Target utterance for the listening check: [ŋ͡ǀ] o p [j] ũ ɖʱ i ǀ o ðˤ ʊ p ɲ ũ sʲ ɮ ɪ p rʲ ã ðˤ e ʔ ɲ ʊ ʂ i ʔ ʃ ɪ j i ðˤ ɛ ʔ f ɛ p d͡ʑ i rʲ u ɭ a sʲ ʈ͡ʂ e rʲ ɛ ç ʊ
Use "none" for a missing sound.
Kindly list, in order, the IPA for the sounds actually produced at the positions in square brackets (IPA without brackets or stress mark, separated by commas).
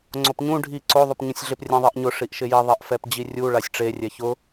ŋ͡ǀ, ɲ